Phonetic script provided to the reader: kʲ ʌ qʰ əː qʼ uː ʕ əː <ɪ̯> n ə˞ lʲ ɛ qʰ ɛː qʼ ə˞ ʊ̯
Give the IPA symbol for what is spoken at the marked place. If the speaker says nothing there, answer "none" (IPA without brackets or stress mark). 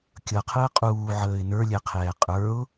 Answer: ɪ̯